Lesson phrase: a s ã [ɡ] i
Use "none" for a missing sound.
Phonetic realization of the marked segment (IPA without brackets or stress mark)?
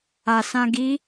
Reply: ɡ